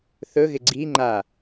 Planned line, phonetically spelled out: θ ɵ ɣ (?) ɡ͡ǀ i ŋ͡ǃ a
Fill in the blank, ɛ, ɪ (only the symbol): ɪ